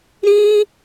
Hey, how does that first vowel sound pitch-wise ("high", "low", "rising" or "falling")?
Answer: high